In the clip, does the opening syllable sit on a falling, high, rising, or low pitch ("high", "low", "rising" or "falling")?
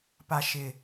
low